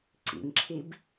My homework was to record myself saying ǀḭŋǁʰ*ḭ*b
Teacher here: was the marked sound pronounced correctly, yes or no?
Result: no